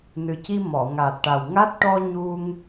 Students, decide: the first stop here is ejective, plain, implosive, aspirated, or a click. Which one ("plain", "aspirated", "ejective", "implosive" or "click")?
plain